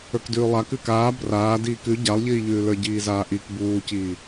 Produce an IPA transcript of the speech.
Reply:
ə˞kdʉːlˠa kʉkaː braː diːkʉ ɟalˠʎiːʎʉːlə˞ ɟiːzaːʔik buːciː

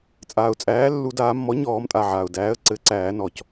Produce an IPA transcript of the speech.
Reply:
t͡sʼaː˩ʊ̯t͡sʼæː˩˥lːu˨˩˦daː˨˩˦ mːɔ˩˥ɲɔː˨˩˦m tʼa˩˧˩ʕaː˩ʊ̯ dæː˩˥ə̯ ǀɘ˨˩˦ǀæː˨˩˦nɔː˩c

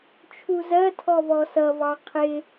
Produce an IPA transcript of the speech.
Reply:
t͡ʃʰuzɜtʰɔ vɔsʌvɑ qʰɪ

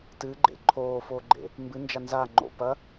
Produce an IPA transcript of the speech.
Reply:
tɨɡ͡ǃḛ ǃʰoːfoɡ͡ǃḛ | mbɨnd͡ʒa nzaŋ͡ǃo̰ pɐ

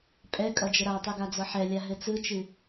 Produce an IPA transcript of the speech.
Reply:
pʼɛ kʼʌd͡ʒəɾatˤɨ ɡad͡zʌħɛlʲa ɦɘt͡sɯt͡ʃɨ

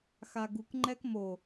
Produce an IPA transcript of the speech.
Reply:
xaɡuk ŋ͡ǃɛkmo

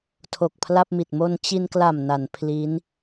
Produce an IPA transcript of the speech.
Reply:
tʰo˨˩k̚pʰla˥˩p̚mi˨˩t̚ mo˧nt͡ɕi˧nkla˨˩m na˩˦npʰliː˦˥n

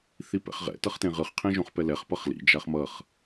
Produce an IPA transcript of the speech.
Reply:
θipɛ̰χʁɛ̰ tʌχtẽʁɯχ qʰẽʒõχpɛlɛχ pʌχlḭ d͡ʒaχmʌχ

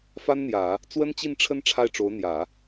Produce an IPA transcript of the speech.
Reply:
fa˥nn̪jä˨˩˦ | t͡swə˥nt͡ɕi˥˩nʈ͡ʂʰə˥n ʈ͡ʂʰa˥˩ɪ̯ʈ͡ʂo˧˥ʊ̯n̪jä˨˩˦

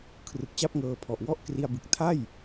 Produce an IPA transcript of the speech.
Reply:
kʰrɯ˨˩k̚t͡ɕa˥˩p̚ŋɤː˧pʰɔ˨˩ʔ wɔ˦˥ʔ kri˧a̯bɯ˨˩k̚ tʰa˥˩j

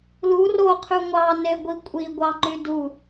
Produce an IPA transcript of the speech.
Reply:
lu ro qʰyŋʷɑ neɡʷikʷʼi ɡʷɑŋ͡ǃydu

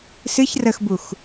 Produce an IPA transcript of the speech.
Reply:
sɨç rəxbux

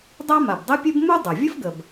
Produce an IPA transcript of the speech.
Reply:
dˤa˥ma˩bdˤɘ˥pʲɘ˥b mu˥ dˤa˩ vʲə˥fɡə˩b

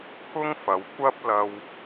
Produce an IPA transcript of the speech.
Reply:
pʰʊ˥ŋfɐ˨˧w kʷɐ˥p̚ lɐ˧w

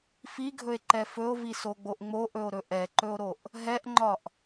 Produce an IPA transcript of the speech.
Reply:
fiɡʱɵe̯ǃɛ fɵo̯visoɡ͡boʔ ŋ͡moʔɵo̯ɾɵ ʔɛǃɵo̯ɾoʔ | ɦɛʔŋ͡ǃɒʔ

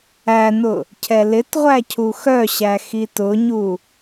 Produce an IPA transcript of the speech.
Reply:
ænʊ | cʰɛlɪtʁʷæ cʰuxœɕæ xitʊɲu

